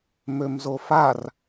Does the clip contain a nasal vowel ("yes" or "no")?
no